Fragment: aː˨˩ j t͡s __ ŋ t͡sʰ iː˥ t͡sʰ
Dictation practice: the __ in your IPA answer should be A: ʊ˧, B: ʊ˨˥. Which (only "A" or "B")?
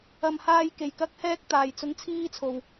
A